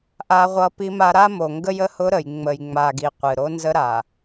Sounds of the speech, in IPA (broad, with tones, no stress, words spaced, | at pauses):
ʔa˦ʁʷʌ˦pi˦ma˦ ɾa˦mo˨ŋɡə˦jə˦ hʊ˦ɾə˨j ŋ͡mə˨jŋ͡ma˨ ɡi˨ qʷɨ˨ ɾo˦nzə˦ɾa˨